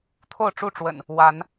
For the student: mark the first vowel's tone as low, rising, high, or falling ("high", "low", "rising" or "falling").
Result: falling